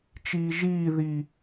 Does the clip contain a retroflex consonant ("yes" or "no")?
no